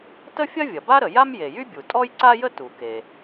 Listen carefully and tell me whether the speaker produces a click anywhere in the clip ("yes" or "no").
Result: yes